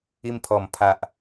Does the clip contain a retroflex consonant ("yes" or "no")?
no